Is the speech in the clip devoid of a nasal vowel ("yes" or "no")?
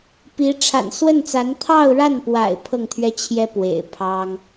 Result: yes